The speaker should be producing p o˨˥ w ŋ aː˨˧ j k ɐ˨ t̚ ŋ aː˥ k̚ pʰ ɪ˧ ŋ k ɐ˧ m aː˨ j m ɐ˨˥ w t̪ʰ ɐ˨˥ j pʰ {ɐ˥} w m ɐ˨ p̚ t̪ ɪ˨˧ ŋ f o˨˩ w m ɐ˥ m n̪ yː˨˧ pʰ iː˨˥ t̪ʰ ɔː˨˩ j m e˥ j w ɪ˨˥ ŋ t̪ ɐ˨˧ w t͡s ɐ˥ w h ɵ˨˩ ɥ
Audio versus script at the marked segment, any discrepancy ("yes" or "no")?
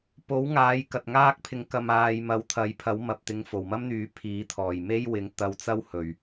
yes